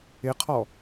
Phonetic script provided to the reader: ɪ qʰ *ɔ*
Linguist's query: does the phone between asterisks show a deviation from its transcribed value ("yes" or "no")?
no